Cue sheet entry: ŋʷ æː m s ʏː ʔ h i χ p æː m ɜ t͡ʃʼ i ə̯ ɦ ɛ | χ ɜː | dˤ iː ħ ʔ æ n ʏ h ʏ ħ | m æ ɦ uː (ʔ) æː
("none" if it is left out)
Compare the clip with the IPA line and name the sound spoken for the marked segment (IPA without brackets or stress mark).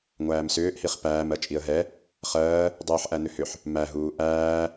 ʔ